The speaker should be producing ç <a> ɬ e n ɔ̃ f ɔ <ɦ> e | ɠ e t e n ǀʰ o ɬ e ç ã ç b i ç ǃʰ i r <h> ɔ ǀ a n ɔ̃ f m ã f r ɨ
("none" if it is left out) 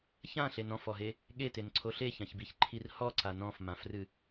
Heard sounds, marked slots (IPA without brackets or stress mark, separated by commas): ã, ɦ, h